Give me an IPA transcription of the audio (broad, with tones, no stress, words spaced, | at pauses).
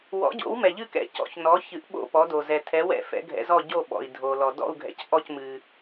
wɔ̰˩˥ɟo̰˩˥w mɛ˩ʎɨ˥˨kɛ̰˩ cɔ̰˩çnɔ˩˥çɨ˩˥ʔ ɓo̰˥˨pɔ˩˥do˩ zɛ˩tʰɛ˩˥wɛ̰˥˨ fɛ̰˩˥ɡʱɛ̰˩˥zɔ˥˨ ɟo˥˨ɓɔ̰˩i̯ dʱo˩lɔ˩ dɔ̰˥˨u̯ɡʱɛ̰˩c ʔɔ˥˨cmɨ˩